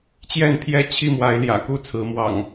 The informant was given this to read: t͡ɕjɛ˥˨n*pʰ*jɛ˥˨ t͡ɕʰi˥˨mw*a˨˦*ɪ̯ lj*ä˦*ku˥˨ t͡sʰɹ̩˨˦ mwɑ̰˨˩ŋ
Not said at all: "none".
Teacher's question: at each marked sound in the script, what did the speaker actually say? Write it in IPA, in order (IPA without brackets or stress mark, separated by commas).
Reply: pʰ, a˨˦, ä̰˨˩